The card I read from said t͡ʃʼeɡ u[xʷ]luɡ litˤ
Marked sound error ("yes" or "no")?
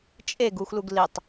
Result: no